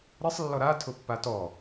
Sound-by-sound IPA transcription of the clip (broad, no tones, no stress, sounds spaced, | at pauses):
ɾ e sˤ lː ɔ ɾ a tʰ ʊ pː a t ɔ